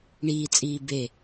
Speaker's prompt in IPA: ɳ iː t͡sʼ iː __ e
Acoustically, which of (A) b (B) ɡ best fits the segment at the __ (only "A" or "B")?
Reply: A